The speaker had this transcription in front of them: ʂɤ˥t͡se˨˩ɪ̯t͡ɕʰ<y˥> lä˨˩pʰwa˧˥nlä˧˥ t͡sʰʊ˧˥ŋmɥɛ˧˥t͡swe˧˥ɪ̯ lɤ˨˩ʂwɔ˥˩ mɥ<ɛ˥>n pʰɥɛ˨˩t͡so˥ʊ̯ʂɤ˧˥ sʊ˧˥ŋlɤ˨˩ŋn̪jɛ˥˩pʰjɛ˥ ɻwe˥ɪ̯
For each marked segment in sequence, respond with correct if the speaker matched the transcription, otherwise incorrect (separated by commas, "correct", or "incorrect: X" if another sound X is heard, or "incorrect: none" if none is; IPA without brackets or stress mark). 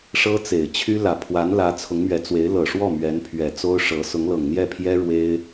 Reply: correct, incorrect: ɛ˧˥